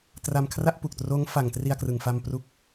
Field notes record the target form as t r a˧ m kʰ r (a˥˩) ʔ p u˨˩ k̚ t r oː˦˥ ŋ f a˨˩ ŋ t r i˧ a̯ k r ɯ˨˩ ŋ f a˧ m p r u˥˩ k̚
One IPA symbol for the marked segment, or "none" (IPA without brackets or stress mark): a˥˩